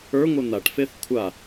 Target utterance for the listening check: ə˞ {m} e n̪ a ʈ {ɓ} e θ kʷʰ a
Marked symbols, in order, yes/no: no, no

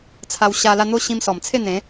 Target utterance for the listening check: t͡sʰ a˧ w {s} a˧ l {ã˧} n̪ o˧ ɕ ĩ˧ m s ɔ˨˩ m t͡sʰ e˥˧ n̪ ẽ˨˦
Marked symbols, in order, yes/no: no, no

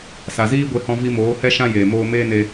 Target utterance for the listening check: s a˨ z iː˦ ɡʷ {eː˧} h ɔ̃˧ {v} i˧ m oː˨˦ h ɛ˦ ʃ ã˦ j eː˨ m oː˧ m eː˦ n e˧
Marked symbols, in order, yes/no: no, yes

